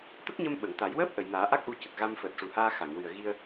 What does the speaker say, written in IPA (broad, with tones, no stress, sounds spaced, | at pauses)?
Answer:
t̪ ə˦˥ k̚ ɲ ə˧ m ɓ ə˨˩˨ ŋ t̪ a˨˩˦ j w əː˦˥ p̚ ʔ ə˨˩˨ j n aː˨˩˦ ʔ a˦˥ k̚ ʔ u˧ c ə˨˩ k̚ ɣ a˧ m f əː˨˩ t̚ ʂ u˨˩ h aː˧ x a˨˩˨ ŋ w ɨ˨˩ ə̯ ɣ i˧ ə̯